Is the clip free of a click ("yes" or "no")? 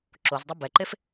no